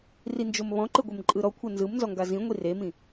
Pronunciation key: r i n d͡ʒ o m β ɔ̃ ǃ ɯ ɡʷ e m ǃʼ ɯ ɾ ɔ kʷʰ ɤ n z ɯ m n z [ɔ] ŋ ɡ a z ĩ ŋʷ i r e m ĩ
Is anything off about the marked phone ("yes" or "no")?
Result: no